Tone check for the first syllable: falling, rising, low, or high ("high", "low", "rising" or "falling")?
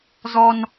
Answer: high